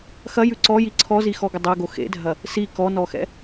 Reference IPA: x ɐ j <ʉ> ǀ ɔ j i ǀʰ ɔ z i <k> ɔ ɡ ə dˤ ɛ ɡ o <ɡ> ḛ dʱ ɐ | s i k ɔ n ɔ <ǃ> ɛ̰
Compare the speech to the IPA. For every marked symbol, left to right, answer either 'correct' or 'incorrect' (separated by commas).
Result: correct, incorrect, incorrect, incorrect